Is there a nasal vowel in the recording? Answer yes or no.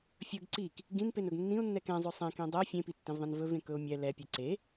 yes